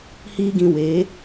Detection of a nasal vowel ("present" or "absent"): present